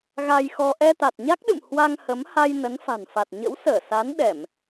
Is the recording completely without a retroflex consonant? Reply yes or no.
yes